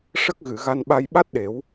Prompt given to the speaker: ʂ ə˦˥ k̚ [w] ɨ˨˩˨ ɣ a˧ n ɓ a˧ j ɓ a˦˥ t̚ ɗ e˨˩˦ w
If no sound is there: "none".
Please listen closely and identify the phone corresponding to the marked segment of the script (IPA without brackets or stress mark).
ɣ